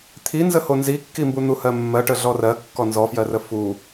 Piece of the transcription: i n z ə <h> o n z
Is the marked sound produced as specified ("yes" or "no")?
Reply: yes